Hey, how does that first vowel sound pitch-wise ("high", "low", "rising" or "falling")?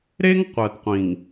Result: high